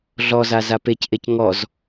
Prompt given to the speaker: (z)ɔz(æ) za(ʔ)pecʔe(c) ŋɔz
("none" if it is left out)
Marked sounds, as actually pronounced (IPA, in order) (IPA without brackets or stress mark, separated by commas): ɮ, a, none, c